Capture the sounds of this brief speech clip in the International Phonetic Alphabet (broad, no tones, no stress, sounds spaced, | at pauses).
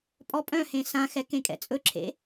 pʼ ɔ pʼ œ̃ h ẽ s ã x ɛ k ẽ kʼ ɛ̰ t͡sʼ ɵ ǁʰ ḛ